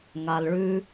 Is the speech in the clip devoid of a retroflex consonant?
no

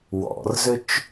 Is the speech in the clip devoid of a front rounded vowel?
no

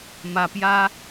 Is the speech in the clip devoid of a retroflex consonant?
yes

